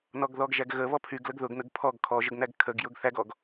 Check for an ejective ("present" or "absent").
absent